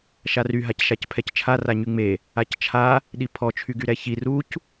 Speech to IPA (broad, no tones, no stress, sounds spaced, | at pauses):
ʃ a r y ɦ a c ʃ a c pʰ ɛ c t͡ʃʰ a r a ɲ y ŋ͡m e | a c t͡ʃʰ a | ɗ i pʰ ɔ t͡ʃʰ y ɡ y ɾ ɛ ç i r u c